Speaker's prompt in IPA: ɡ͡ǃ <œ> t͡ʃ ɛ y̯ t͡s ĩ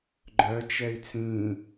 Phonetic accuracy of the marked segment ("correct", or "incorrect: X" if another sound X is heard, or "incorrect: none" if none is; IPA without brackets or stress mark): correct